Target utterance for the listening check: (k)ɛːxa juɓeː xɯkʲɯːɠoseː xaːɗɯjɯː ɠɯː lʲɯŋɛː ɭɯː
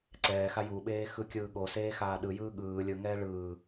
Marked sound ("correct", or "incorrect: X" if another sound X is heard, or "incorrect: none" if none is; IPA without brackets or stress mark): incorrect: ǀ